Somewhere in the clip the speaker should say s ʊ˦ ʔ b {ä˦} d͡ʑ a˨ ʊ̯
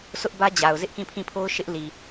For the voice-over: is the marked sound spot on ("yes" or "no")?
yes